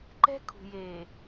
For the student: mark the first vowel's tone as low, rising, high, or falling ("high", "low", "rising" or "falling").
high